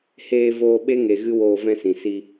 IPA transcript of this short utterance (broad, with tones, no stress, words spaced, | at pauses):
heː˧voː˧ɓe˦ŋe˨ ɣɨ˦woː˧vɛ̃˦sĩ˨ si˧